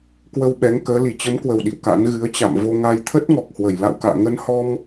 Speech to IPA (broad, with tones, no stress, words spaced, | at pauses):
kwə˧wɓɛ˨˦ŋkəː˨˦ li˧˩t͡ɕə˨˦mkwə˨˩w ɗḭ˧˨wka̰˧˥n ɣɨ˨˦ə̯t͡ɕa̰˧˨m vo˧ŋa˧j t̪ʰə˦˥t̚ŋɔ˨˩k̚hwə˧˩j la̰˧˨wka̰ː˧˨ ŋə˧nhɔ˧m